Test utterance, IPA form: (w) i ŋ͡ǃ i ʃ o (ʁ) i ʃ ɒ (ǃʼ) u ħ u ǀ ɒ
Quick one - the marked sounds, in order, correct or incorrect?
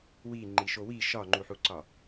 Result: correct, incorrect: w, incorrect: ŋ͡ǃ

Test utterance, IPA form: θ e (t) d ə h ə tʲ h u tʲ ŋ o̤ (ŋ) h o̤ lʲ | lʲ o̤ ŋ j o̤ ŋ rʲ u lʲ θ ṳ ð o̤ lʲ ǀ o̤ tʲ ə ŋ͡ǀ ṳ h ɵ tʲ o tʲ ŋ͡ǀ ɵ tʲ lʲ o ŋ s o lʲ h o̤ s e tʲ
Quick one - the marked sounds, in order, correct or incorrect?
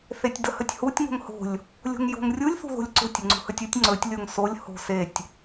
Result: incorrect: tʲ, correct

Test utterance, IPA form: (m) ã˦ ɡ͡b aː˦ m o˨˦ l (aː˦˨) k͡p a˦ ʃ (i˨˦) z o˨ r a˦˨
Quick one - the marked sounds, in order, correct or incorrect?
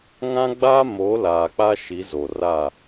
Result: incorrect: ŋ, incorrect: aː˨, correct

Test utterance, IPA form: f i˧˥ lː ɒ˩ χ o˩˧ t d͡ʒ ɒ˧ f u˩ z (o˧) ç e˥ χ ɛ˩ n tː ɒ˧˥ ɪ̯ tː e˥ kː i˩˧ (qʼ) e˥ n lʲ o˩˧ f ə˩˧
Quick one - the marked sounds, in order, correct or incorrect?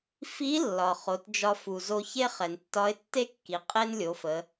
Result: correct, correct

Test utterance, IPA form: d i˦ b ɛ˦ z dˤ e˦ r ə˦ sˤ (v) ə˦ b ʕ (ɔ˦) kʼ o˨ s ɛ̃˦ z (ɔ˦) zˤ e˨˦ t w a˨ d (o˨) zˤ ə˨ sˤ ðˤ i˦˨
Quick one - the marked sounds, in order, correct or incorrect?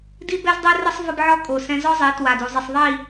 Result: correct, correct, correct, incorrect: u˨

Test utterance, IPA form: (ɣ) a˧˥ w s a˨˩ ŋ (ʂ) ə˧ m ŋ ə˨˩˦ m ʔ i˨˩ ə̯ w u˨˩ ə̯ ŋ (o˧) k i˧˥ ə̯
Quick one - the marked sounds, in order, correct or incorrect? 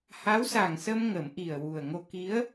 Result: incorrect: h, incorrect: s, correct

